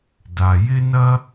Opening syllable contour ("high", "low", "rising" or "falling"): low